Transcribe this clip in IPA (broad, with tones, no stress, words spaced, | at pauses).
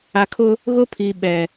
a˨kʰʊ˦ | ɣʊ˦pʰi˨ɓɛ˨